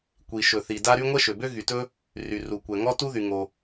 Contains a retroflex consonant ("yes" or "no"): no